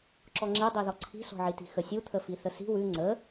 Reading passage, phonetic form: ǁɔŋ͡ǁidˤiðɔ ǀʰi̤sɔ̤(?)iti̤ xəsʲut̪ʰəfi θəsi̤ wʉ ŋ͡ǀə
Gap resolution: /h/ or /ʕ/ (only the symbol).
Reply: ʕ